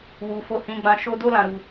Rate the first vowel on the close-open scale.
close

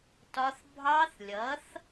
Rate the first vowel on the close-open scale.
open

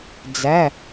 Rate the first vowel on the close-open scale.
open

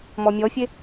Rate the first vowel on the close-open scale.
mid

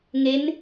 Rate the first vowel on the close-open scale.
mid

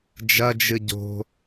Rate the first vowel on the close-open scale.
open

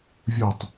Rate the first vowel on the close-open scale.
close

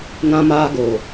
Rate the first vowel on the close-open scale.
open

